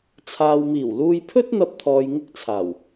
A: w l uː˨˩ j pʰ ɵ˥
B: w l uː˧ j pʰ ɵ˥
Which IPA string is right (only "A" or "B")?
B